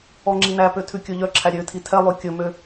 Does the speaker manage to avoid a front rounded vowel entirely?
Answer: no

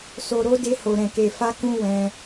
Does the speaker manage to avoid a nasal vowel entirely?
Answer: no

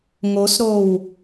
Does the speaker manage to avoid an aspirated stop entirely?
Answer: yes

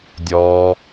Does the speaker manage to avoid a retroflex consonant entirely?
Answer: yes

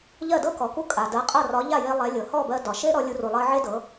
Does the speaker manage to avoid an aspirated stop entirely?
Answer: yes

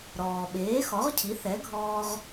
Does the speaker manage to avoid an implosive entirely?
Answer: no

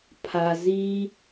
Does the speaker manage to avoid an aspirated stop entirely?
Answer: no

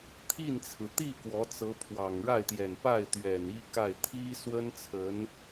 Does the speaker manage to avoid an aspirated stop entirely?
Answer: no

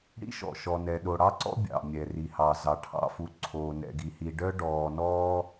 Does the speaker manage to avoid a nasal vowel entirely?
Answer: yes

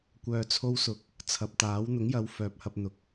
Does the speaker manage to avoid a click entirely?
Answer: yes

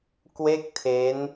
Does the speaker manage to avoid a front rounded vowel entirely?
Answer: yes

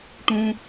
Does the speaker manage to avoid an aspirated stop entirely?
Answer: yes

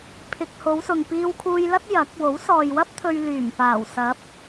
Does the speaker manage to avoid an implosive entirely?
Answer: yes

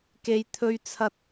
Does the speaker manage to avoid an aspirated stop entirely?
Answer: no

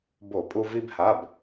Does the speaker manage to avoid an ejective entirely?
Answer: no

